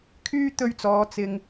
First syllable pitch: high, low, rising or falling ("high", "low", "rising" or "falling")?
high